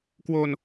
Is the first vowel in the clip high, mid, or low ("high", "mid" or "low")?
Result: mid